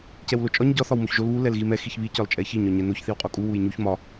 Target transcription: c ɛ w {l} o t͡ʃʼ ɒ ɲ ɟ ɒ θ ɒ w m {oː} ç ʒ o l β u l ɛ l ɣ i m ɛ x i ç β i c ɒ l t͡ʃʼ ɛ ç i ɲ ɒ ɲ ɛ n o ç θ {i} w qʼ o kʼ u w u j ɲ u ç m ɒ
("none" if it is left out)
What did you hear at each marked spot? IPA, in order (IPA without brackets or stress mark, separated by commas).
l, o, i